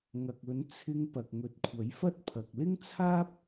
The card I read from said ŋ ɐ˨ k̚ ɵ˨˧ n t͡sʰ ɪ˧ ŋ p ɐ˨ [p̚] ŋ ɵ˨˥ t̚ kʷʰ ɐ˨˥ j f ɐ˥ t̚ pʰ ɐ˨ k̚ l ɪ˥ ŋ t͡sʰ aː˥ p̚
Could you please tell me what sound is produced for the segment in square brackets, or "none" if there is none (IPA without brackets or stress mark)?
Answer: k̚